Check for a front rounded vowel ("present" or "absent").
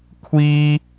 absent